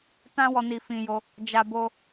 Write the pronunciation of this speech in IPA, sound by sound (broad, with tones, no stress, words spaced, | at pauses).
tã˦wɔ˧ ni˧fĩ˧jo˧ | d͡ʒa˧bo˧